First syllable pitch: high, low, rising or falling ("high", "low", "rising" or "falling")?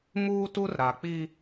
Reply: high